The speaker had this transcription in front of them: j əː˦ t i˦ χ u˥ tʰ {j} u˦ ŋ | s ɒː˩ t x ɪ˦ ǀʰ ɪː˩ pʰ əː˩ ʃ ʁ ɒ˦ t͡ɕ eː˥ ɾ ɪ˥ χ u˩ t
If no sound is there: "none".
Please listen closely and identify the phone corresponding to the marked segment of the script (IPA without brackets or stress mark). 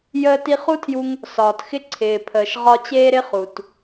j